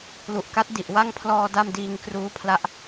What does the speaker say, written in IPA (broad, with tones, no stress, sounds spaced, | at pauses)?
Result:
l u˨˩ ʔ k a˦˥ t̚ d i˨˩ ʔ w a˥˩ ŋ pʰ l ɔː˧ d a˥˩ m d iː˧ ŋ k r uː˦˥ pʰ l a˦˥ ʔ